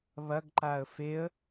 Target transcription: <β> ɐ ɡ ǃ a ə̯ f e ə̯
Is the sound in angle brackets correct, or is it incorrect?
correct